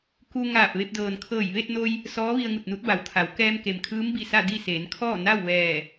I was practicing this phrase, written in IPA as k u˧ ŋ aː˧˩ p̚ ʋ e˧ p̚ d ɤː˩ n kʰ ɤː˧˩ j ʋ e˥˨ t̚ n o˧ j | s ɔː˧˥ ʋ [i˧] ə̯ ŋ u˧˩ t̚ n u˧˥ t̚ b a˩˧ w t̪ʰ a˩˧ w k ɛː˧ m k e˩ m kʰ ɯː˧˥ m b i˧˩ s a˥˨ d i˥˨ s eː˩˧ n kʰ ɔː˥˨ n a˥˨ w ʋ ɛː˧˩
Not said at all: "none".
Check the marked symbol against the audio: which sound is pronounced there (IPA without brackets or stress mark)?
i˧